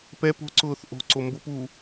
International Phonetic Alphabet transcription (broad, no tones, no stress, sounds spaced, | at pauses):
p ɛ p o̤ ǀ ʊː θ ʔ o̤ ǀ o m b ʊ p uː